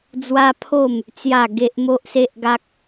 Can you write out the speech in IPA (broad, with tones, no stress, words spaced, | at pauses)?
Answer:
d͡zwa˦pʰo˥˧m | t͡sja˥˧ɡe˦ʔ mo˦ʔse˦ʔɡa˦k̚